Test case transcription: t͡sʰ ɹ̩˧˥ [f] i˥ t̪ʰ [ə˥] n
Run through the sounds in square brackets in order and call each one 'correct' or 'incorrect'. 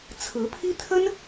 incorrect: pʰ, correct

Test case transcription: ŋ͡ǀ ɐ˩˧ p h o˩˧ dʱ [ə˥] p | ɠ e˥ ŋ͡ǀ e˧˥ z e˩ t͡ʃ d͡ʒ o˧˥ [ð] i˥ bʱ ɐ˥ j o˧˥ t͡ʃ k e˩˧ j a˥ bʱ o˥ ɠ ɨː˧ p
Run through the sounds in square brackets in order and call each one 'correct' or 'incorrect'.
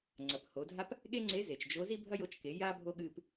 incorrect: a˥, incorrect: z

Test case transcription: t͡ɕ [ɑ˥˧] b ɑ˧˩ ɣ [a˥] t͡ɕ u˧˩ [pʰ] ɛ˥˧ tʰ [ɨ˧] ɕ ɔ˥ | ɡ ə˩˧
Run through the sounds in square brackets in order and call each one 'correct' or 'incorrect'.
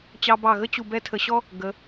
incorrect: ɑ˧, incorrect: ə˥, incorrect: b, incorrect: ə˧

